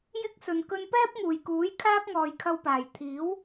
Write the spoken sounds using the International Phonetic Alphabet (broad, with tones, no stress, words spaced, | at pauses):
jɪ˥k̚sɵ˨n kɵ˧npɛː˥p̚ŋuː˨˩jkuː˨˥j kʰaː˥k̚ŋɔː˨jkʰɐ˧wpaː˨˩j t̪ʰiː˨˥w